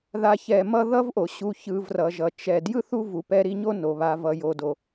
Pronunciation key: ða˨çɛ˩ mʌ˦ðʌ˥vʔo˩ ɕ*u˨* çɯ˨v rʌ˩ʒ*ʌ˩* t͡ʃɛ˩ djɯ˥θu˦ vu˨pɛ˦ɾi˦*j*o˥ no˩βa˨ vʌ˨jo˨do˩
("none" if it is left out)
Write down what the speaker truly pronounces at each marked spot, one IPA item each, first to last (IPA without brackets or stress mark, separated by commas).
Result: u˨, ʌ˩, ɲ